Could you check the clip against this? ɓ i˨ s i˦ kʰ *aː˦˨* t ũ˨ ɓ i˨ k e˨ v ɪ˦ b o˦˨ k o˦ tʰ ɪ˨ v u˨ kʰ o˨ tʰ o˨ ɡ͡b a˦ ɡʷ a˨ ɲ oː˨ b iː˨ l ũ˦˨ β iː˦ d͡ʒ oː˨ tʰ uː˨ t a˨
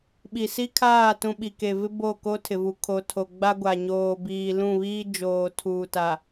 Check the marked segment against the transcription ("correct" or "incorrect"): correct